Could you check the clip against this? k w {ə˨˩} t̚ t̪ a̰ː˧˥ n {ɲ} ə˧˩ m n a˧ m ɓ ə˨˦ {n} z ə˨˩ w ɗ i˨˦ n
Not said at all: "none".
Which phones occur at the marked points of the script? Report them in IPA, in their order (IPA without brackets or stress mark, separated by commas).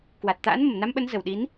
a˨˩, m, n